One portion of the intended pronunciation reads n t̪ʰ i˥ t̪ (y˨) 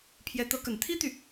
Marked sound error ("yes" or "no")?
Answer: no